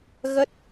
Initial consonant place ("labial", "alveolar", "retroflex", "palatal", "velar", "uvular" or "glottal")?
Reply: velar